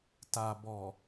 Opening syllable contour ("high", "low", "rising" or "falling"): low